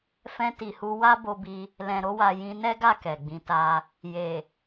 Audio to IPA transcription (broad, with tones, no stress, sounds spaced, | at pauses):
f ɛ̃˧ t i˨ h u˧ w a˦ b o˧ b i˧ | l ɛ̃˨ ɾ o˧ w a˨ j ĩ˧ n ɛ˦ ɡ a˦˨ k ɛ˨ ɡ͡b ĩ˧ t a˦ | j e˨